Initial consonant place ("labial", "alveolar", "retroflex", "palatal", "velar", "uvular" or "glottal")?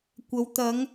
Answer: velar